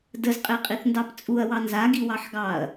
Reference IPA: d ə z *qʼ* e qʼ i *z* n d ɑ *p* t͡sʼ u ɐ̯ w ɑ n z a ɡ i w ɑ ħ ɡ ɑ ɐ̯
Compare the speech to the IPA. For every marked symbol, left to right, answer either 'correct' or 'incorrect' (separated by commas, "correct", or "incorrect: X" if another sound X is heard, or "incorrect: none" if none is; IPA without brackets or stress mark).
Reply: correct, incorrect: θ, correct